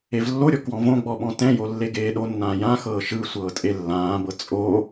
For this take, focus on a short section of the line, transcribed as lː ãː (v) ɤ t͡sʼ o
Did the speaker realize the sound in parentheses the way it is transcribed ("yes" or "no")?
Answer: no